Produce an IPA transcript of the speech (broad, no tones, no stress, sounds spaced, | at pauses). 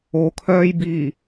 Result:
o kʰ œː j b iː